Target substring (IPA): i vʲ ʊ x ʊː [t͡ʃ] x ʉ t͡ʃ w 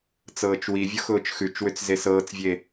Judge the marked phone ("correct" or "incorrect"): correct